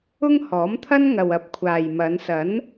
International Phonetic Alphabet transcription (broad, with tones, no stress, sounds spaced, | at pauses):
ʊ˥ ŋ h ɔː˨˥ m t̪ʰ ɐ˥ n ŋ ɐ˨ w ɐ˧ p̚ kʷʰ aː˨ j m ɐ˨˧ n s ɐ˨˥ n